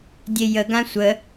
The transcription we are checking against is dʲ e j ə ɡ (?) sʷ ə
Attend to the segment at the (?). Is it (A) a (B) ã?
B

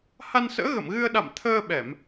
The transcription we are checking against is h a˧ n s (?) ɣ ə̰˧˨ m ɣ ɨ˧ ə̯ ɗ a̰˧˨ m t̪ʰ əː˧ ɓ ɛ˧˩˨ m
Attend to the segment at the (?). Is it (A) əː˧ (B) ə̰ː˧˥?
B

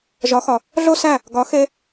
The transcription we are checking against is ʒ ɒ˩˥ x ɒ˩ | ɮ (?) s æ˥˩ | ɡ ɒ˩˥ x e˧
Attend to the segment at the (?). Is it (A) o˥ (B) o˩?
A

